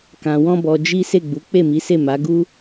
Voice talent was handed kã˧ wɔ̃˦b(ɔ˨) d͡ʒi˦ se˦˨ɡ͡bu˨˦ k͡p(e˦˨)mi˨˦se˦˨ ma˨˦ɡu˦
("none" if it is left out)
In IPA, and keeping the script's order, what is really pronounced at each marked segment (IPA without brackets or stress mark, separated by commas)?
ɔ˧, e˦˨